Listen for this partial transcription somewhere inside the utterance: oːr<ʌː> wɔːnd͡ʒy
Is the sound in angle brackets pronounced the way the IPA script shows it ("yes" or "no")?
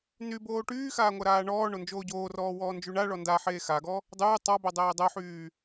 no